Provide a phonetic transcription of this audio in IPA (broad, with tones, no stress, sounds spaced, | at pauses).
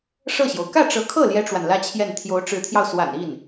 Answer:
ʂ ɤ˥˩ ɕ j o˩ ʊ̯ k ä˥˩ ʈ͡ʂ ɤ˧˥ kʰ ɤ˥˩ l j ɛ˥ ʈ͡ʂ w a˨ n l ä˥ t͡ɕʰ j ɛ˥˩ n t̪ʰ j o˧˥ ʊ̯ ʈ͡ʂ ɻ̩˧˥ t̪ʰ j ɑ˧ ʊ̯ s w a̰˨˩ n i˥˩ n